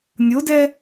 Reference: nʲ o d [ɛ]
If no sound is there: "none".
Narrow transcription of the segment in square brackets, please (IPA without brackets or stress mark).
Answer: ɛ